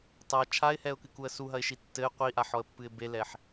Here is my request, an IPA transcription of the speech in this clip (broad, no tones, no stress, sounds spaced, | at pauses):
tˤ a t͡ʃʰ a ɪ̯ h ɛ ʊ̯ k ɨ k u ə̯ s u ɦ ɐ ɪ̯ ʃ i tː ɘ ɪ̯ qʷ i ʔ a ħ ɔ ə̯ pː ɨ ɪ̯ b e l ɛ ħ